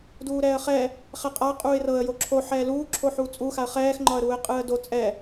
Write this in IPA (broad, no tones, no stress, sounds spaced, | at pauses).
d uː ɾ ɛː ə̯ χ ɛ | χ ɛ qʼ a qʼ uː ɪ̯ r ɤ ə̯ j o ǁʰ o ħ ɛː l uː ǁʰ o ħ uː t͡sʼ u x a ə̯ χ ɛː x ŋ͡ǃ ɒ ə̯ ɾ uː ɪ̯ qʼ ɯː ə̯ d o t͡sʼ ɛ